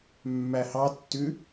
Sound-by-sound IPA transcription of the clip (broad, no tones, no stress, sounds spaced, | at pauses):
mː æ h ɑ tː ʉ